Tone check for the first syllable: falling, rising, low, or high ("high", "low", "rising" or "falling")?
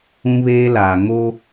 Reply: high